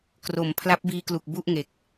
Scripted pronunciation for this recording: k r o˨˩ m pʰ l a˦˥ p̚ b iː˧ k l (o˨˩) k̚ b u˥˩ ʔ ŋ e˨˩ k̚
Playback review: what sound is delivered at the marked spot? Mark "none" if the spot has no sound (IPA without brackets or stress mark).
u˨˩